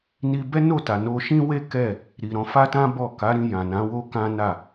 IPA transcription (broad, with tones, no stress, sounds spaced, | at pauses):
n i˧ b ɛ˦ n o˦˨ t a˨ n o˧ ʃ ĩ˦ w e˦ k ɛ˦˨ | ɾ i˨ ɾ ɔ̃˧ f a˦ t ã˦ b ɔ˦˨ k a˨˦ ɾ ĩ˧ j ã˨ n ã˨˦ w o˦ k ã˦ n a˦˨